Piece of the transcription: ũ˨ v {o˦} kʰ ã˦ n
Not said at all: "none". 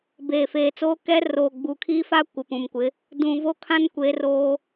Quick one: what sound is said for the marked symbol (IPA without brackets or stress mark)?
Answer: o˦